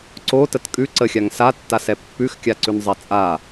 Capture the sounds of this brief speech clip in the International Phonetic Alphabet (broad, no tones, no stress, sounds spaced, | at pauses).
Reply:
ǀ o t ə t kʼ ʉ ǀ ə xʲ a ŋ s a tː a s ɛ pː ʉ x kʲ a ǀ ʉ n zˤ ɛ t͡sʼ a